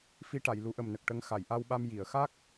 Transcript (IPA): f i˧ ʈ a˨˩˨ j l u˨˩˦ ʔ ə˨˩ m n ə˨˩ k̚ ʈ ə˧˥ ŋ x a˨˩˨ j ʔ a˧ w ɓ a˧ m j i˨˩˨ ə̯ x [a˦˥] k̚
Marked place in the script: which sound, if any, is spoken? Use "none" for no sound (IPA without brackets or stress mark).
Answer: a˦˥